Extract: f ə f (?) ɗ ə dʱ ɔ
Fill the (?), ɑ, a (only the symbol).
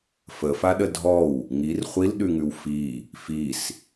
a